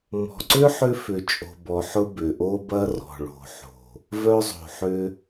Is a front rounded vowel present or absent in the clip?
present